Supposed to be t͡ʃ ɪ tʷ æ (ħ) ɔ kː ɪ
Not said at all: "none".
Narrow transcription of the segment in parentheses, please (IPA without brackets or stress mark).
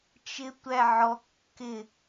ʕ